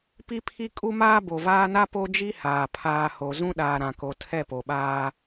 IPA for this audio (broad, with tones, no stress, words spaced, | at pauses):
pi˦pʰi˦ kʼu˦maː˦ bo˨vaː˦na˦ po˦d͡ʒi˦haː˨ pʰaː˨ho˨ zũ˦ɗaː˨ɾã˨ko˨ tʰɛ˦˨po˨ɓaː˦